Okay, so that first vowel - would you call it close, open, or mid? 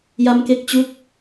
open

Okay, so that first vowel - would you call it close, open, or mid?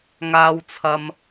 open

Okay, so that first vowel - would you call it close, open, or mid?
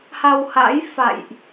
open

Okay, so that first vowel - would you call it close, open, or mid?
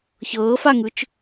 mid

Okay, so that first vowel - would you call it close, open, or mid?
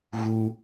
close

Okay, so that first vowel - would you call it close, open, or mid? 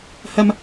open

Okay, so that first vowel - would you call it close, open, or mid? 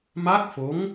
open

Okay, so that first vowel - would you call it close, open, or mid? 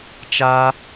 open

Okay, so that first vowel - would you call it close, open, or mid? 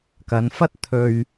open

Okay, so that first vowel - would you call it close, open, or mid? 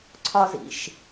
open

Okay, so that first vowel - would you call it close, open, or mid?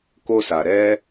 mid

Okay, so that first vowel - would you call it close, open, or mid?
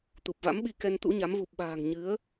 close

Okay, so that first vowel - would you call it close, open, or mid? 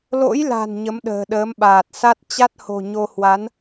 mid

